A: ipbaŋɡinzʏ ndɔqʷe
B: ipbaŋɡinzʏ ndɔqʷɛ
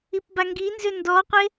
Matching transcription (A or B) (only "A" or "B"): A